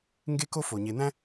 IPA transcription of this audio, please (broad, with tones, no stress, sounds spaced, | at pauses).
ŋ ɡ e˦ k o˦ f o˩ ɲ e˨ n̪ æ̃˥